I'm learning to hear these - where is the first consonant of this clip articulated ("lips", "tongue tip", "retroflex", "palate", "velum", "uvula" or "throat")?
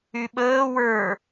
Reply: lips